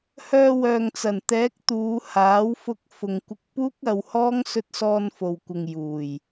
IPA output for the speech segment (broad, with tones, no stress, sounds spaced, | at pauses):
h œː˧ w œː˨ ŋ t͡s ɐ˨˩ n t̪ ɛː˨˥ k̚ t̪ uː˨˧ h aː˨˥ w f ʊ˧ k̚ f ʊ˨ ŋ kʷ ɪ˧ k̚ p uː˥ k̚ ɐ˨˧ w h ɔː˥ ŋ s ɵ˧ t̚ s ɔː˧ n f o˨ w kʷ ɪ˨ ŋ j uː˨˩ j